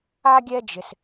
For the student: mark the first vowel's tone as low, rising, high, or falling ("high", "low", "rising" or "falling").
high